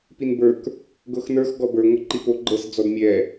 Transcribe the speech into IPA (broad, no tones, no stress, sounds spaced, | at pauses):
p i n b ə˞ k | ɡ ɤ x n ə˞ x ɡ ɔ b ə˞ ŋʷ ɤ ǃ i p o ɡ͡ǃ ɤ s d͡z ɔ d mʲ ɛ